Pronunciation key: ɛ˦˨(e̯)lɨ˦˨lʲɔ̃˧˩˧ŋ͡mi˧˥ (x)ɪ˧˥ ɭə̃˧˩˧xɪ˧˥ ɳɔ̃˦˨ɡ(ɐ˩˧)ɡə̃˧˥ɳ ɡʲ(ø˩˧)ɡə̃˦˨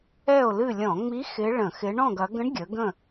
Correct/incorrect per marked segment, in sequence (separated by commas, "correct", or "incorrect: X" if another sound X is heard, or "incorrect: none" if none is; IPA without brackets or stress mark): incorrect: o̯, correct, correct, incorrect: ə˩˧